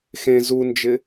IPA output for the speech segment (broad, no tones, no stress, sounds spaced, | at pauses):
x ẽ z u n d͡ʒ ɪ